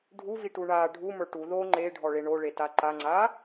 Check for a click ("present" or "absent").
present